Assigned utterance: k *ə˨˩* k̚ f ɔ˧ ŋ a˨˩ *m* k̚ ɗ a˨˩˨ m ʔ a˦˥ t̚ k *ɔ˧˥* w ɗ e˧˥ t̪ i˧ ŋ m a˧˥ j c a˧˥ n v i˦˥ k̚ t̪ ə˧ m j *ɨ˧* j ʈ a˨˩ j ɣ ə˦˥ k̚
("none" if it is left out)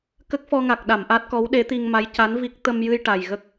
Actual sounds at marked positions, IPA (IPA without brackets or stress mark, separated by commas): ə˦˥, none, ɔ˧˥, ɨ˧